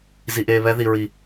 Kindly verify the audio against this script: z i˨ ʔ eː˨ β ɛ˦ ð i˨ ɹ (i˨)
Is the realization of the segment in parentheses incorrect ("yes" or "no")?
no